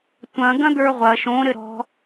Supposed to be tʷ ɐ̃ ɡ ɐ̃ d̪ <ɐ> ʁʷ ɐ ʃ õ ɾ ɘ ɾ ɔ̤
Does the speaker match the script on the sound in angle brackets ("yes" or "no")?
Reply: no